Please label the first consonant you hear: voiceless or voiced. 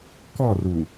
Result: voiceless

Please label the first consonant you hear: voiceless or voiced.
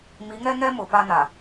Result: voiced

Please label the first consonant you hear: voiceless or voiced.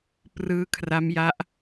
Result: voiceless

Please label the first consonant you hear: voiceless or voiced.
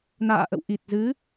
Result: voiced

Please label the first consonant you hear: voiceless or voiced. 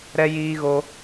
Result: voiced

